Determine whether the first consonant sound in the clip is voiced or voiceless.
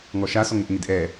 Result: voiced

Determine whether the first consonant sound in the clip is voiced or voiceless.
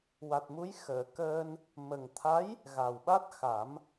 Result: voiced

